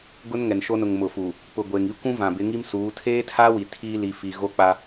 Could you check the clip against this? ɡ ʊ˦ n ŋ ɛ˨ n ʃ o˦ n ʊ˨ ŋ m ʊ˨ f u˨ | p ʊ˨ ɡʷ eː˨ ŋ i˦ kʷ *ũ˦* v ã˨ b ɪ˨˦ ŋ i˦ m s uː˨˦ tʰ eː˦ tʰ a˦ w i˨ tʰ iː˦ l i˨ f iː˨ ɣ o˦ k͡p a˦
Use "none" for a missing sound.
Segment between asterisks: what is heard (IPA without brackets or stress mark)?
ũ˦